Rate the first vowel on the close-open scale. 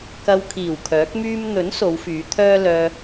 open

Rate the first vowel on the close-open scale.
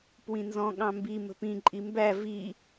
close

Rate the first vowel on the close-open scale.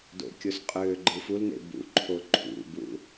mid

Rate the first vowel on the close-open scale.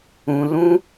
close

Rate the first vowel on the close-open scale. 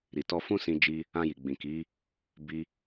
close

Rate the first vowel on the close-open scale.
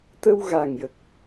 mid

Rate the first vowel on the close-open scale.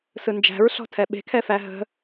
close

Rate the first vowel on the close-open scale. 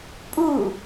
close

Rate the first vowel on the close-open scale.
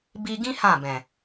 close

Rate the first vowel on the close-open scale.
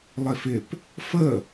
close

